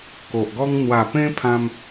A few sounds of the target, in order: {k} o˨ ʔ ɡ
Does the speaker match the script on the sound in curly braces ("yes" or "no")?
yes